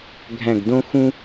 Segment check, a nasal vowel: present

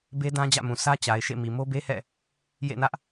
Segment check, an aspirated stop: absent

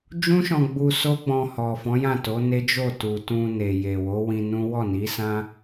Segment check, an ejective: absent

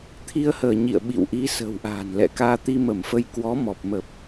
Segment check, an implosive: present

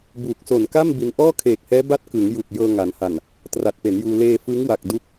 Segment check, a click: absent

